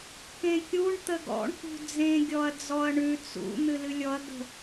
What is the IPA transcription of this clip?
kẽkʲuɳ t̪əɡɔ̰ɳ kṳd͡zẽ ɡʲɔɐ̯d͡zɔɐ̯ɳʉ t͡sṵ n̪ɨlɨlʲɔɐ̯ ɡə̤

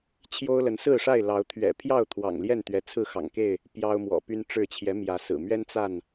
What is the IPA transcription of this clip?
t͡ɕʰjo˦ʊ̯lə˨˦n sɹ̩˥˨ʂa˥˨ɪ̯ lɑ˨˦ʊ̯t̪ʰɥɛ̰˨˩pʰjɑ˥˨ʊ̯ t̪ʰwɑ̰˨˩ŋljɛ˥˨nt̪ɥɛ˨˦ t͡sʰɹ̩˥˨xɑ̰˨˩ŋke˥˨ɪ̯ | pjɑ˦ʊ̯mwɔ̰˨˩py˦n ʈ͡ʂɻ̩˥˨ t͡ɕʰjɛ˨˦mjä˨˦sɹ̩˨˩mɥɛ˦n t͡sa˥˨n

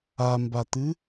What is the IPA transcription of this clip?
ambat̪ɨ

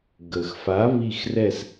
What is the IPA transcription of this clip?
ɡə˩x fa˨˥βi˦˨xrɛ˦˨s

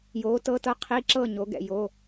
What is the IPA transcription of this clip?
joː˨˥tɤ˧˥˧tɤ˥ qʰi˧˥˧ǁɤ˥˨ ɲo˨˥ɡɛ̰˥˨jo˧˥˧

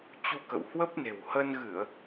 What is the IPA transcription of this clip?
t͡ɕu˧kə̰˧˨w hwə˦˥p̚ne̤˨˩w hə˧nɣɨ˧˩˨ə̯

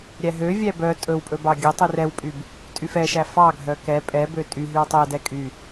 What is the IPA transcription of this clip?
ɾʲæɦøvʲæ bœ tʼɵwpʼɵ bɑɡʲœtˤyr ɛwpʼyb | tʼyfɛʃæ fɑɡʱœ kɛ pʼɛbø tʼy ɦywtˤœdɛ kʼy

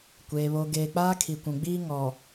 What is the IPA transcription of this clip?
kʷeː˨ βo˨ɡeː˨ k͡paː˦kʰi˨kʷũ˨ɡ͡biː˦ ŋɔ˨

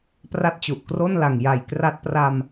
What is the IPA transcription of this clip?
pra˦˥t̚t͡ɕu˨˩ʔkro˥˩n la˨˩ŋ ja˨˩jkra˦˥t̚pra˧m

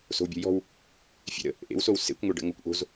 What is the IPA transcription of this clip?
so̤wbʲo̤jɔ̤w | fʲḛɾə̰ | ʔḛwsow sḛkʷ ŋʷeɖə̰ŋokʷ ʔo̤z

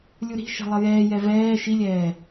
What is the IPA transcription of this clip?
lʲuɾi̤ʃɛ̤ lˠʌjɛːjɛ vɛː ʃilʲɛː

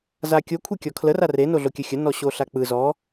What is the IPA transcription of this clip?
zakʲo kʷʰekʲɔkʰlə rare noɮokʲəxʲə nɔɕoɬak͡pɯ zɔ

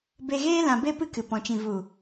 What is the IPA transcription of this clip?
be˧ɣeː˦ lã˧be˦pɨ˦kɨ˨ pɔ̃˨t͡ʃĩ˨vu˨

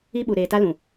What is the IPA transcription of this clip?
i˦ɓu˨ɾeː˨ ta˦lũ˨

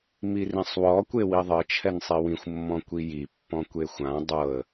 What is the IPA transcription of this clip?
mirĩsˤwɔ kʷewiðˤɤ t͡ʃʰɛnsˤiwĩxʷ mːɔ̃kʷiji pːɔ̃kʷexʷã dˤɤə̯

